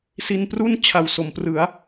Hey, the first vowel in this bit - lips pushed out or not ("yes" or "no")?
no